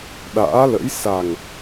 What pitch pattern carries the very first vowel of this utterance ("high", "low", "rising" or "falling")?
rising